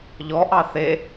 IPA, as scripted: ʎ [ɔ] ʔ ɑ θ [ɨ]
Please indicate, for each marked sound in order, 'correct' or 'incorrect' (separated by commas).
correct, incorrect